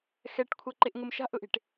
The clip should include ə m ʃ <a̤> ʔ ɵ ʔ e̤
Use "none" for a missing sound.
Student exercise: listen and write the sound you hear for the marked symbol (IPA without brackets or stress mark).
a̤